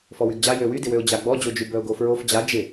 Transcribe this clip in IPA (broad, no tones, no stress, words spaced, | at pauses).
fɔwyɡd͡ʑa jøwydɪwøʊ̯ d͡ʑaɡ͡bɔd͡ʑod͡ʒy bœʊ̯ɡofɹof d͡ʑa d͡ʒɪ